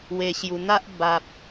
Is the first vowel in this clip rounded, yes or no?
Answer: no